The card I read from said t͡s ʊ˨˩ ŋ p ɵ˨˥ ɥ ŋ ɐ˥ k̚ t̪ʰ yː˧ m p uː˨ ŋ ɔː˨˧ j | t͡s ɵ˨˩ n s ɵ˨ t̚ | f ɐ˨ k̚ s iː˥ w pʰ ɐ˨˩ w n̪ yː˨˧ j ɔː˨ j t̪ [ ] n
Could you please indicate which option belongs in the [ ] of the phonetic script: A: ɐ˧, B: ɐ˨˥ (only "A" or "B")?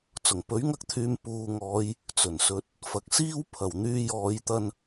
A